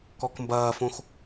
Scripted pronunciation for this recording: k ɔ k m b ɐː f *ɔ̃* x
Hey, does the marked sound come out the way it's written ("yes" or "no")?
no